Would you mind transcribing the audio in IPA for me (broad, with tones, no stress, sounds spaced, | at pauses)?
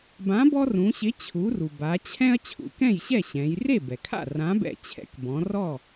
b ã˨˥ b ɔ˦ r ũ˩˧ ɕ ɪ˨˥ t͡ɕʰ u˩˧ r u˩ b a˩˧ t͡ɕʰ ɛ̃˦ ɐ̯ t͡ɕʰ ṵ˩˧ k ɛ̃˥˩ j ɕ ɛ˥˩ ɕ ɛ̃˩˧ j r e˥˩ b ɛ˩ kʰ a̰˥˩ r ã˨˥ b ɛ̰˧˩ t͡ɕʰ ɛ̰˨˥ k b ɔ̃˩˧ r ɔ˥˩